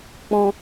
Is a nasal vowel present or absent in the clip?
present